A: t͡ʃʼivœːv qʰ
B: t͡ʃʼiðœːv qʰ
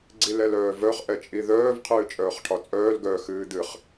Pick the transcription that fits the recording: B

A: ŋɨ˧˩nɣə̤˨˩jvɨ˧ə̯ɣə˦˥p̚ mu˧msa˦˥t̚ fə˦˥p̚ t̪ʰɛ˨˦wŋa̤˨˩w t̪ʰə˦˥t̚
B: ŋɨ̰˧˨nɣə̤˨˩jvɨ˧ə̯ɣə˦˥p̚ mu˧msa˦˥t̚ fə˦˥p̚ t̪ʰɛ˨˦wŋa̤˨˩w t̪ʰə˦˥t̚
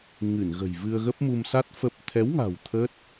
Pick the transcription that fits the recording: A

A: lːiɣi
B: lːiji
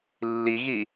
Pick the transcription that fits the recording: A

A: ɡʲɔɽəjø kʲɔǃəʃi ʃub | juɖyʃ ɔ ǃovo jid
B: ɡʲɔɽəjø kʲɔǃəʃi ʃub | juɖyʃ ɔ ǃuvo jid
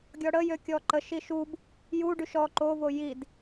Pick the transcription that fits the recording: A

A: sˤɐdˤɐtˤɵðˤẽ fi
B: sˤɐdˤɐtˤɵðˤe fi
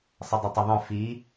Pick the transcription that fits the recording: A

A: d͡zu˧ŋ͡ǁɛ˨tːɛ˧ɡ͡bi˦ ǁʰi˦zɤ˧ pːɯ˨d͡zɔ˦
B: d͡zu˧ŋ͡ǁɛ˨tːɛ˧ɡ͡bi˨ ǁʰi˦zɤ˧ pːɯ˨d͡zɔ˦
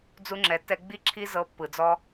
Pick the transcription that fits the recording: A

